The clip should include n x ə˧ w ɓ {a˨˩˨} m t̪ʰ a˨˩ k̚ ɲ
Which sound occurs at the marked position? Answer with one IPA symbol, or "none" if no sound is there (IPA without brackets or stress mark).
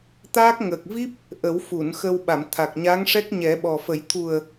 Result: a˨˩˨